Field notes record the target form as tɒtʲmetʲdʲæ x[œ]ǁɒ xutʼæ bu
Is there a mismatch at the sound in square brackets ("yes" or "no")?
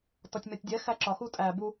yes